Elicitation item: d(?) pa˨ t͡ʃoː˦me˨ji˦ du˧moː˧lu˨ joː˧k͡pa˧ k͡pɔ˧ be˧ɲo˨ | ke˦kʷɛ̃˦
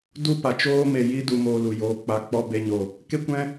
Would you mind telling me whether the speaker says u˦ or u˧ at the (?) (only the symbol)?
u˦